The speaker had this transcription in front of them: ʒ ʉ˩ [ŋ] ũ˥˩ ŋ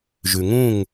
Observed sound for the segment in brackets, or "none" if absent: ŋ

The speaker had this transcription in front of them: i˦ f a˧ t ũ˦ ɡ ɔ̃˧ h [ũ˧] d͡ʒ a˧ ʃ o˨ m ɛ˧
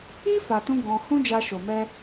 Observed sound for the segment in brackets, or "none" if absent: ũ˦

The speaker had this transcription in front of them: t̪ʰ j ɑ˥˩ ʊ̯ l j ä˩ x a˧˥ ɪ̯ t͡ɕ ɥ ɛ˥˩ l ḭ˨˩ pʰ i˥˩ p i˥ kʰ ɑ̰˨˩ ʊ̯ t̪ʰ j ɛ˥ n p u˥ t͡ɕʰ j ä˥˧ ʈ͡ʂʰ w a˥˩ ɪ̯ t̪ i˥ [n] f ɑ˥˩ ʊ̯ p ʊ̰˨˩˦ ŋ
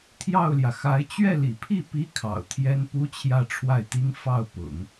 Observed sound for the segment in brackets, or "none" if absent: ŋ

